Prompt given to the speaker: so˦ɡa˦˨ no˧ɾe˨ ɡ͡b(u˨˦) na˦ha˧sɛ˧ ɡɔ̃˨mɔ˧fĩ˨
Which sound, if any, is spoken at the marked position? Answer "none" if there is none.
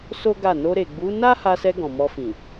u˨˦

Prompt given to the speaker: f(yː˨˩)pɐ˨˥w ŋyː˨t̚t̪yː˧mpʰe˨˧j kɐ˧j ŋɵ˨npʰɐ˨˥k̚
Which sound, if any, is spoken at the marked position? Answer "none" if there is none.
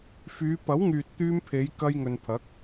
yː˨˧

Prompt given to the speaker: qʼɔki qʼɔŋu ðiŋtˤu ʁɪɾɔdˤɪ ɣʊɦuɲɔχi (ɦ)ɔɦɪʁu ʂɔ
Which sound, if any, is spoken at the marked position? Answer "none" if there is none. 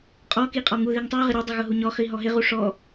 ɦ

